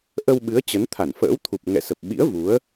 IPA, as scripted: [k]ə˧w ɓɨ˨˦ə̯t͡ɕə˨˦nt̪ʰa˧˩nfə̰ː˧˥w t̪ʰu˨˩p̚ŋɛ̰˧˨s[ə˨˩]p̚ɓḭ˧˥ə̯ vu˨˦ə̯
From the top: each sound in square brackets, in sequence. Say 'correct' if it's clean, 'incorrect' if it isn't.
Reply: incorrect, correct

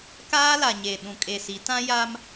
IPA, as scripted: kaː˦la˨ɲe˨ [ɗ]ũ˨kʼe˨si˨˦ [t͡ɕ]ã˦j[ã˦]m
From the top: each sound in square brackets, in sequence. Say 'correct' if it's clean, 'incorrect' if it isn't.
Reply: correct, incorrect, incorrect

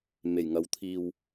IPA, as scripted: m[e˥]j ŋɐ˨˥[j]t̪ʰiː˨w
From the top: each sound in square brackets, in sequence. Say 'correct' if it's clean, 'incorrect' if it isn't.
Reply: incorrect, incorrect

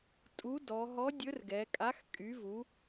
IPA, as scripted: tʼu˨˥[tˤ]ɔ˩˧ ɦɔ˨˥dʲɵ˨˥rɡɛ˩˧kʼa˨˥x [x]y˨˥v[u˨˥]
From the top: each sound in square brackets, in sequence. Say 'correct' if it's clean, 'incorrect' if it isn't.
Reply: incorrect, incorrect, correct

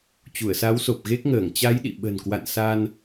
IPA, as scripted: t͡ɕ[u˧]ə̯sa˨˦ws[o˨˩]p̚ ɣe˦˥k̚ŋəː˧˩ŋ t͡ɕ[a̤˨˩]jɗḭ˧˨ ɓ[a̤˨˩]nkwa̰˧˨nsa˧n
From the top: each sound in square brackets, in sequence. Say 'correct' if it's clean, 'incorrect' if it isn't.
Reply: incorrect, correct, incorrect, incorrect

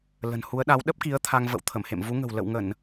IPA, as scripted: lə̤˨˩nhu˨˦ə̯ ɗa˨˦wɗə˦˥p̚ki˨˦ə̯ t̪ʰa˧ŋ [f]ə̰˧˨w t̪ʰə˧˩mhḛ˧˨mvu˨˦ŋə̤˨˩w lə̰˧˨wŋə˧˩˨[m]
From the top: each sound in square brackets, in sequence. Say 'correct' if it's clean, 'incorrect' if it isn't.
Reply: incorrect, incorrect

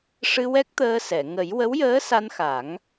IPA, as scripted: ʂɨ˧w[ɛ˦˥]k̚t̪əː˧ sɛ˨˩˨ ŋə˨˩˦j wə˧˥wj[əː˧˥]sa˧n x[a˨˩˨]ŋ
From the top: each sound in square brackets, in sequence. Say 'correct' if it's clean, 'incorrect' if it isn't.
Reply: correct, correct, incorrect

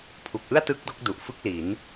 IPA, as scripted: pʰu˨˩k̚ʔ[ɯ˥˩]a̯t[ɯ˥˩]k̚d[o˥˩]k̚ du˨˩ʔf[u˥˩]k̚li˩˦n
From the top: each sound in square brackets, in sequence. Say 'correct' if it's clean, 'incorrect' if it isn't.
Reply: correct, incorrect, incorrect, incorrect

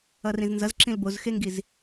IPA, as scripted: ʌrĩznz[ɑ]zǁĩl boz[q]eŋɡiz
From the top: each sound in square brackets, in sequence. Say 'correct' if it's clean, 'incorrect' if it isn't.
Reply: incorrect, incorrect

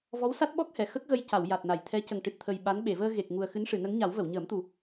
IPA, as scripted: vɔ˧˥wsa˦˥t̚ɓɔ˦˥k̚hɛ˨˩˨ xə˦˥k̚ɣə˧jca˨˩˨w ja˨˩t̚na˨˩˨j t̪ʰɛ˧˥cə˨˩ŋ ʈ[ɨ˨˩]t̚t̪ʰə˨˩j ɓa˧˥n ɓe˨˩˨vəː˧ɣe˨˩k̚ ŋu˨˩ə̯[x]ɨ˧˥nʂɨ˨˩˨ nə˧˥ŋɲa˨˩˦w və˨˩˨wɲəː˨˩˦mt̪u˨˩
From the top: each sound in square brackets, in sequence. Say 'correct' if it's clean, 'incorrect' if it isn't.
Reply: correct, correct

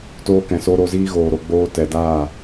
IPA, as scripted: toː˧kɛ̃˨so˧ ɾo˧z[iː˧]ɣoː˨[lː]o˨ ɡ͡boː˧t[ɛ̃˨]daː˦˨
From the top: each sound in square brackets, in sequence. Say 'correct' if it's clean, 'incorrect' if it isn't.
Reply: incorrect, incorrect, incorrect

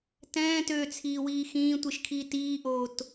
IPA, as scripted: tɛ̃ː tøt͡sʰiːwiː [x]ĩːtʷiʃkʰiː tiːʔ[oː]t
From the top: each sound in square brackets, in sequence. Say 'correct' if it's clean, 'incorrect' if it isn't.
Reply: correct, correct

